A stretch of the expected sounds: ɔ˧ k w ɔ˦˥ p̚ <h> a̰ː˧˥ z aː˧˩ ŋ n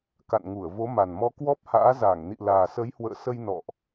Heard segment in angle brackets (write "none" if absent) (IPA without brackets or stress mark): h